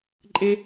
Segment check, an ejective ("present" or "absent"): present